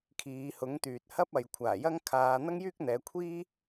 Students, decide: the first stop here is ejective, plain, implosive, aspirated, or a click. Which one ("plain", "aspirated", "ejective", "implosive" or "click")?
aspirated